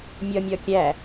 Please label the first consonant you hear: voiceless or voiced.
voiced